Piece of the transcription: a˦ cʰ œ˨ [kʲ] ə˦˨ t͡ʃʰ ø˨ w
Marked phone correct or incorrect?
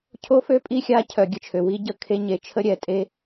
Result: incorrect